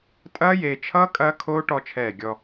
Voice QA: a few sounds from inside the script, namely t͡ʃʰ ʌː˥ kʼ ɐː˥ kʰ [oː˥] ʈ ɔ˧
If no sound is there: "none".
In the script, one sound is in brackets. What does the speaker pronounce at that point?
oː˥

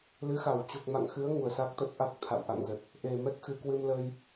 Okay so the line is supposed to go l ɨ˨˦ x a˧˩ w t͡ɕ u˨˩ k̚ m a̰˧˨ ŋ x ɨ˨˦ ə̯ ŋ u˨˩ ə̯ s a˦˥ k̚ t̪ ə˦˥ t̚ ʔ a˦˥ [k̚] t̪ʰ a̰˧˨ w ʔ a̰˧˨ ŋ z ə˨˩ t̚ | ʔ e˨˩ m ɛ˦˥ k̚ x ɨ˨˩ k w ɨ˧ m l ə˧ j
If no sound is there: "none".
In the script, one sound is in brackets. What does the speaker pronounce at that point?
k̚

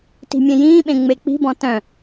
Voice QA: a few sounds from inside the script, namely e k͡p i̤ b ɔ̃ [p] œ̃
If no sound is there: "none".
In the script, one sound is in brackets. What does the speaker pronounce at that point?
t̪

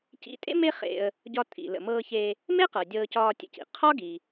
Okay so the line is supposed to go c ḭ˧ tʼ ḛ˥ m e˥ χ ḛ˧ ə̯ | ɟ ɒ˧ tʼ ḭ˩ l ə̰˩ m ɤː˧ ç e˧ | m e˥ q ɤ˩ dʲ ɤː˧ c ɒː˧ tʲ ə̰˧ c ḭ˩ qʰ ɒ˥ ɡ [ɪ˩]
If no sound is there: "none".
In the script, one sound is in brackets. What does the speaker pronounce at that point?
i˩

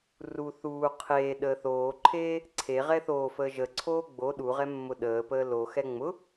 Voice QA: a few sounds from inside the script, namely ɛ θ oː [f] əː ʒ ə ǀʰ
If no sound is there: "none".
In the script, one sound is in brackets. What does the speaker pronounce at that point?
f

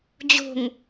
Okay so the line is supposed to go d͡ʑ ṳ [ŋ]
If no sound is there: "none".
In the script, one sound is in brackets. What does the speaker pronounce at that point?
ŋ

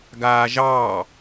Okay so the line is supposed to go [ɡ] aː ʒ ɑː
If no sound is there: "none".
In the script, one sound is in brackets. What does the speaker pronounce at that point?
ɡ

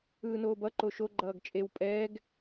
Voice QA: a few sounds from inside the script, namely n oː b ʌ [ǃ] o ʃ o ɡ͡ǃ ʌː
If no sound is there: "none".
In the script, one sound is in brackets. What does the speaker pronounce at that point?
ǃ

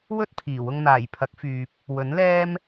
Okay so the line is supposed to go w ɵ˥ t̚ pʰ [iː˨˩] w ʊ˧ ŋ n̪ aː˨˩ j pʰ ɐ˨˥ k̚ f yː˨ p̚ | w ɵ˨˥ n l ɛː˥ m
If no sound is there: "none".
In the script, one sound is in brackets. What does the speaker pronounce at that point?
iː˨˩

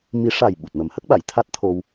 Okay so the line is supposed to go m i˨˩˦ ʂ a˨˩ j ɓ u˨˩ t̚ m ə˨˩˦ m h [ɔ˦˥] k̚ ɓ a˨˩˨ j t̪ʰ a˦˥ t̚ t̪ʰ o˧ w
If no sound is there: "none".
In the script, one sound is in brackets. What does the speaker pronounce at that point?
ə˦˥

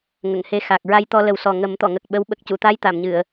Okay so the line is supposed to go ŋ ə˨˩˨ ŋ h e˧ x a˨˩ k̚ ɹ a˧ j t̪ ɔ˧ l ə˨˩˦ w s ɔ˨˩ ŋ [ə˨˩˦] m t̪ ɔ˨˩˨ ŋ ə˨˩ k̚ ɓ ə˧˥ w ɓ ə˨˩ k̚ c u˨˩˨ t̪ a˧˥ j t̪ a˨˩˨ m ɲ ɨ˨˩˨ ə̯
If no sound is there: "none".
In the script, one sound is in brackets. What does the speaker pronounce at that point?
ə˨˩˦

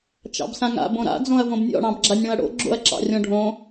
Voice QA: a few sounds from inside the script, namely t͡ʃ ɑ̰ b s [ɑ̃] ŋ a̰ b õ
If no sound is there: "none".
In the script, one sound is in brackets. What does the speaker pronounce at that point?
ã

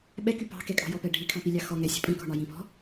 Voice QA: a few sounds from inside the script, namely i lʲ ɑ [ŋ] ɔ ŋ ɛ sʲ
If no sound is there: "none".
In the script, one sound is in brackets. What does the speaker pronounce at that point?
x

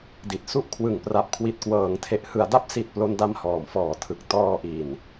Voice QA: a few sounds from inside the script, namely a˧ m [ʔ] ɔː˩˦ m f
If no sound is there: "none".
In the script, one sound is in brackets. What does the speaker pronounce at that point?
h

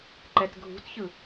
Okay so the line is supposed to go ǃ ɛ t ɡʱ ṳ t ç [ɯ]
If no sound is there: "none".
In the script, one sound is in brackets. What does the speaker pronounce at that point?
ɯ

